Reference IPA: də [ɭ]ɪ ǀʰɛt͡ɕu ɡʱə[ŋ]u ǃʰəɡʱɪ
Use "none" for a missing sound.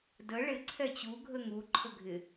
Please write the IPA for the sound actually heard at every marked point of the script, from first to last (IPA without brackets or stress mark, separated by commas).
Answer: ɭ, ŋ